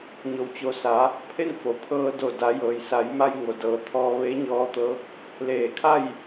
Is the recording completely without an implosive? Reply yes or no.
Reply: yes